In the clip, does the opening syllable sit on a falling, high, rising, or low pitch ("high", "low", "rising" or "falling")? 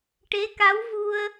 rising